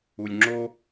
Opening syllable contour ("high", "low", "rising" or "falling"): low